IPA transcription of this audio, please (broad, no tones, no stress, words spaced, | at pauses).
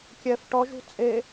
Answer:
kʲɛf ʈɔʒṳ t͡sʼe